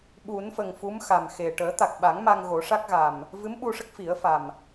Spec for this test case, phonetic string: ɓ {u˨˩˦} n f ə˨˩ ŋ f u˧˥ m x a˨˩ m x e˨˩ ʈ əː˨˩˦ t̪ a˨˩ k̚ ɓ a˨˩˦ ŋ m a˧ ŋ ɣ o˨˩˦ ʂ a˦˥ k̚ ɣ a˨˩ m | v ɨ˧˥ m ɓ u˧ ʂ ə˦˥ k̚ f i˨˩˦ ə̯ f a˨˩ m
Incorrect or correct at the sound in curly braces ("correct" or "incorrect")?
correct